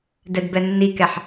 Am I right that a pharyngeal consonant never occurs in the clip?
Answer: no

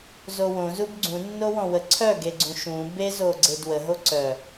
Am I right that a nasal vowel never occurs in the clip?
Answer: no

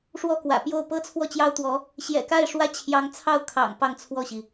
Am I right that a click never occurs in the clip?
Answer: yes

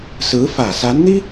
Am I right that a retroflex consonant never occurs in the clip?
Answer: yes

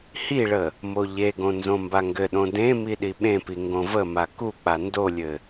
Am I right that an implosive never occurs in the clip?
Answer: no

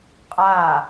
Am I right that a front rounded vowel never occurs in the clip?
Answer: yes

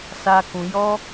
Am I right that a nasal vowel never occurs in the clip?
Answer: no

